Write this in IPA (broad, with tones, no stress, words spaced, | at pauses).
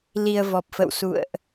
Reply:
li˧ə̯vɔ˨˩p̚fə̰˧˨wsṵ˧˨ə̯ʔ